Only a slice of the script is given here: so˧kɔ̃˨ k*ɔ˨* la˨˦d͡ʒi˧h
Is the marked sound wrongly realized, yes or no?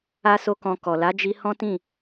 no